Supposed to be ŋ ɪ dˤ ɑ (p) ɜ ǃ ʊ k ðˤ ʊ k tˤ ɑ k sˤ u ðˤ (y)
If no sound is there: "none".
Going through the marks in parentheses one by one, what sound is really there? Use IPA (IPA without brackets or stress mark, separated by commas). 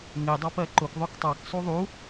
p, u